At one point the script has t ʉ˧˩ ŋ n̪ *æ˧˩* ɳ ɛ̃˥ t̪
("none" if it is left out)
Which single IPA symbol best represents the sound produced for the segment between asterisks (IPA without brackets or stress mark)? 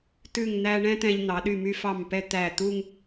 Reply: æ˧